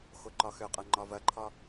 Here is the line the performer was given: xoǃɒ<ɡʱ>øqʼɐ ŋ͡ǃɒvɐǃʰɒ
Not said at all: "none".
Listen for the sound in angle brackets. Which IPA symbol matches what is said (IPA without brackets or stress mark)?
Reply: x